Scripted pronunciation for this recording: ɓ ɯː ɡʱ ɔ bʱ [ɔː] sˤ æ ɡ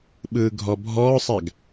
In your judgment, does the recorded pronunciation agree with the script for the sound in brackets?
yes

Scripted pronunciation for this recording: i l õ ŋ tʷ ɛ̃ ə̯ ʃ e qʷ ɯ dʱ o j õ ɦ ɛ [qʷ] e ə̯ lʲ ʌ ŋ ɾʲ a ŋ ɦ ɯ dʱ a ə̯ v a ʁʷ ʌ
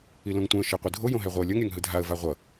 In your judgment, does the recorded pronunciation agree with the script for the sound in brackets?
no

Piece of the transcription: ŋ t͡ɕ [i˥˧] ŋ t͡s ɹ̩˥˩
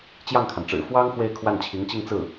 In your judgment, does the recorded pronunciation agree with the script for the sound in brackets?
yes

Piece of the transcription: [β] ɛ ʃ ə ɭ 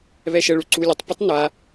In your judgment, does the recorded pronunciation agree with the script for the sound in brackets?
yes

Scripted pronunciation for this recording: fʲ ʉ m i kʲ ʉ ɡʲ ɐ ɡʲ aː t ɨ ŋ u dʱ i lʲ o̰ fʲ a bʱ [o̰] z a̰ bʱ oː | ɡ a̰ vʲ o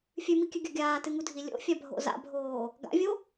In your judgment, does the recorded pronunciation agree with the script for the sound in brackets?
yes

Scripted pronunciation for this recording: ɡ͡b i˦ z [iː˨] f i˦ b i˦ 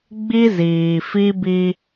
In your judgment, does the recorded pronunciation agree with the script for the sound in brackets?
yes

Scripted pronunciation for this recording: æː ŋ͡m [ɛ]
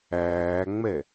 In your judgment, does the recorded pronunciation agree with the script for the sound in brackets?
yes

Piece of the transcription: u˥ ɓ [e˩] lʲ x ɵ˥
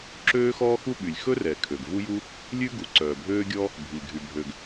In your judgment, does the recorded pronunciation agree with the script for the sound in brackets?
no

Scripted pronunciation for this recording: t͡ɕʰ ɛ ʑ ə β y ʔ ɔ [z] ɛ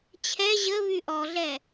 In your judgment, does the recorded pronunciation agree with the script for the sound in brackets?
no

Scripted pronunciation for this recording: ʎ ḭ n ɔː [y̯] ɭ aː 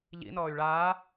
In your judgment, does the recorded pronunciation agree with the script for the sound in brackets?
yes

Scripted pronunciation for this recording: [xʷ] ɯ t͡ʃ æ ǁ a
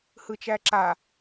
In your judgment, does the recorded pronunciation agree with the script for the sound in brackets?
no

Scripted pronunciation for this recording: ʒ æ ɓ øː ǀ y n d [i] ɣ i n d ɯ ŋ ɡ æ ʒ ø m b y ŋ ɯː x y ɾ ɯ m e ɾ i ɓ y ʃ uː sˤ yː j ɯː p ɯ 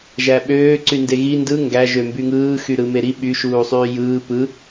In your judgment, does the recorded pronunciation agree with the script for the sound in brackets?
no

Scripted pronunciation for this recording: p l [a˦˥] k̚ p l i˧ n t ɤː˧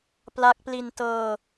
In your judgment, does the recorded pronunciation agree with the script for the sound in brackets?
yes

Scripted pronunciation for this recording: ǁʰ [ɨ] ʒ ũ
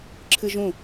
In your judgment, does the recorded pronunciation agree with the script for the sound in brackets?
yes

